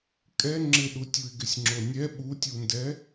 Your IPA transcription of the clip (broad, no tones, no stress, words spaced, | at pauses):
kʼɛ ŋ͡ǁɪɗutʲuɪ̯ɡɪsʲ ŋ͡ǁonʲɛ ɓutʲundɛ